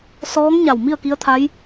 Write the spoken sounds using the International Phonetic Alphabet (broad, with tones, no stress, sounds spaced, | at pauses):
s ɔː˧˥ ŋ ɲ a˧˩ w m i˥˨ ə̯ k i˧˥ ə̯ t̪ʰ a˧˥ j